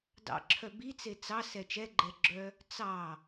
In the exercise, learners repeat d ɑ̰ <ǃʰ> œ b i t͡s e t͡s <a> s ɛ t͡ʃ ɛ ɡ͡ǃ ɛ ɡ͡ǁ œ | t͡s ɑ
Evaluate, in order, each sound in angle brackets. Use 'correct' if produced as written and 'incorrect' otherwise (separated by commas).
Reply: incorrect, incorrect